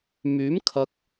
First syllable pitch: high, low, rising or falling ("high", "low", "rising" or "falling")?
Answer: rising